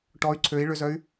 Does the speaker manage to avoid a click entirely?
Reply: no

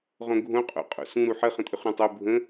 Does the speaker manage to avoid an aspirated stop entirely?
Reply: yes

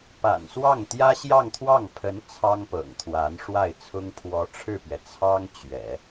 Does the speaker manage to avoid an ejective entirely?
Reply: yes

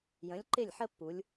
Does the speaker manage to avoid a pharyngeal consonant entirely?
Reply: no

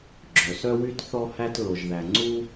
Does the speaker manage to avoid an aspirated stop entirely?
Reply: yes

